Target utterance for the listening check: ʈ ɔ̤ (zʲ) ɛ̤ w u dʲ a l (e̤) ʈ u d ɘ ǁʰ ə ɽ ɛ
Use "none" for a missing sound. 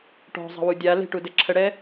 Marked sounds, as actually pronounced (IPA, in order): zˤ, e̤

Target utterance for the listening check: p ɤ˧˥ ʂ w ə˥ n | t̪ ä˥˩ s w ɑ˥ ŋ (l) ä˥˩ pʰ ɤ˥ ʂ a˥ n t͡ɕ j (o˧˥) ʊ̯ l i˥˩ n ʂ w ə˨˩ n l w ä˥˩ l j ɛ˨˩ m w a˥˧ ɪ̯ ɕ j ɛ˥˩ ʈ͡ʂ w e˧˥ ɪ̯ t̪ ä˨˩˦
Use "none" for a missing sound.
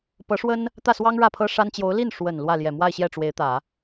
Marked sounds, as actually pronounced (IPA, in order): ɻ, o˧˥

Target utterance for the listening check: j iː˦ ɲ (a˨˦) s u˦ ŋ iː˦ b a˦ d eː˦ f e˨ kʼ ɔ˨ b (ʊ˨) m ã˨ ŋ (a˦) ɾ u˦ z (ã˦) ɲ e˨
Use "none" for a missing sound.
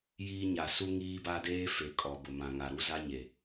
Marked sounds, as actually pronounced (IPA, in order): a˨, ʊ˨, a˨, a˦

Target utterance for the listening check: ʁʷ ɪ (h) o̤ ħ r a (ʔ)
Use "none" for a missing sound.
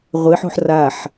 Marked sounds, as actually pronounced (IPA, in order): ħ, ħ

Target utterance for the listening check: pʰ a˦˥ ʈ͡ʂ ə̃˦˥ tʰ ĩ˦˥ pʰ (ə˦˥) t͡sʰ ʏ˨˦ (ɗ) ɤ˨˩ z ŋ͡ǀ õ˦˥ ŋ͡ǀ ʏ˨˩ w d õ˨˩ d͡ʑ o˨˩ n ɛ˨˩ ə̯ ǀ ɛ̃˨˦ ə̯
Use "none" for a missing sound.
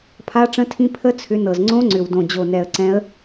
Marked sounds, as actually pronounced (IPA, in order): ə˦˥, n

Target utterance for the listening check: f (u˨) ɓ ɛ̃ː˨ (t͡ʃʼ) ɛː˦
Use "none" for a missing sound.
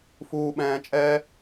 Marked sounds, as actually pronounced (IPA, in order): uː˨, t͡ʃʼ

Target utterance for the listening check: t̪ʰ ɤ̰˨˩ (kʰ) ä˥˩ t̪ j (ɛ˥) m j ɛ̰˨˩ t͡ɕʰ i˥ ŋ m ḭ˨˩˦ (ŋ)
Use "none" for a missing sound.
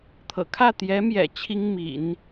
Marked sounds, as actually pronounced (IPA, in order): kʰ, ɛ˧˥, n

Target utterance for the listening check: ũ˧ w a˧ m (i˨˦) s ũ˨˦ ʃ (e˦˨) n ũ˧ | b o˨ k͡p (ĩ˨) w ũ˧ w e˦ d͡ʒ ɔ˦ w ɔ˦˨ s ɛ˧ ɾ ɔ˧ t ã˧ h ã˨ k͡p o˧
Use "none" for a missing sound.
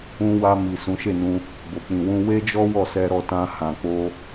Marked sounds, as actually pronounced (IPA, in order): i˨, e˦˨, ĩ˨

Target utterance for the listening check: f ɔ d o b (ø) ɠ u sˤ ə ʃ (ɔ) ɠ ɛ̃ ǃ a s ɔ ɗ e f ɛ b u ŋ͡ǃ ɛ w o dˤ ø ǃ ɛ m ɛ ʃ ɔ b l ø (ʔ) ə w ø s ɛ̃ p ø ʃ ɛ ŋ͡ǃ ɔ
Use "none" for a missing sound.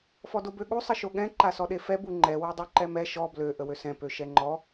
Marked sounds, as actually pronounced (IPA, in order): ø, o, ʔ

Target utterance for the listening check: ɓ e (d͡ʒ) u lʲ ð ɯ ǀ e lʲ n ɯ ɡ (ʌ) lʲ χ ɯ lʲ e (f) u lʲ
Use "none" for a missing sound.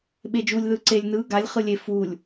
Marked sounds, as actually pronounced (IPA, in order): d͡ʒ, a, f

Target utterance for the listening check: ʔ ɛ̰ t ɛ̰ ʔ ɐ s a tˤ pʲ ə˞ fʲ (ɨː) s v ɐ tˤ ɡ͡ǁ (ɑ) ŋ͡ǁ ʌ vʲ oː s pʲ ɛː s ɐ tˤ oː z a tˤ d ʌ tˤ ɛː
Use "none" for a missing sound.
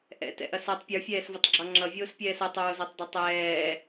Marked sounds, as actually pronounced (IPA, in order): ɛː, ɑ

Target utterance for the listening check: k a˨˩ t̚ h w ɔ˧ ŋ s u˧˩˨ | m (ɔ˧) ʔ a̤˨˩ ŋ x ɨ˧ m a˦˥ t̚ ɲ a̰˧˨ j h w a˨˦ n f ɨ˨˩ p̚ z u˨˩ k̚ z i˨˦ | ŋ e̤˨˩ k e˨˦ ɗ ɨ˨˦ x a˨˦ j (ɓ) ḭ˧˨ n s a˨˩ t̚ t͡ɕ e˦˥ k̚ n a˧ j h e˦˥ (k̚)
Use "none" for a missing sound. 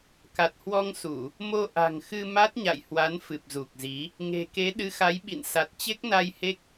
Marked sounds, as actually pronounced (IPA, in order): o˧, ɓ, k̚

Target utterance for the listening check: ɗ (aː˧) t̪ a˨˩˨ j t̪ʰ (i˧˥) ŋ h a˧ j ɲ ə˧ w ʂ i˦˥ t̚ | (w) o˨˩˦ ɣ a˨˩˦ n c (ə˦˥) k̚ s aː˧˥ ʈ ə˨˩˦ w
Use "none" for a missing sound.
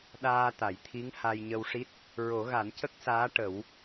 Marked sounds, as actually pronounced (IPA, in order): aː˧, i˧˥, ɹ, ə˦˥

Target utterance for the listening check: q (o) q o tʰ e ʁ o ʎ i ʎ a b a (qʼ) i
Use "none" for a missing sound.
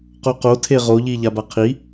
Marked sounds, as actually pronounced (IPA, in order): o, qʰ

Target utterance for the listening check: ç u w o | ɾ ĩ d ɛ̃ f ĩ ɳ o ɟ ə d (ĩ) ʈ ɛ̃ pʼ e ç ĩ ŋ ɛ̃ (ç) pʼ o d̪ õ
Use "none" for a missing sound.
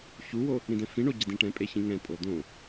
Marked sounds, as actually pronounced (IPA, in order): ĩ, none

